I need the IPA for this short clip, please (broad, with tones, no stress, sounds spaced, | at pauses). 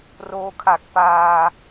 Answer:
r oː˧ kʰ a˨˩ k̚ p aː˧